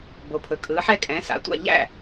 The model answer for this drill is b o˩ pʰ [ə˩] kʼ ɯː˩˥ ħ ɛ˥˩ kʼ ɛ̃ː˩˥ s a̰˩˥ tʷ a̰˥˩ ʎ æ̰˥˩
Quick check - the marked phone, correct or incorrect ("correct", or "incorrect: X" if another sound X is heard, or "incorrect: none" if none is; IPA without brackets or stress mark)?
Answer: incorrect: ɵ˩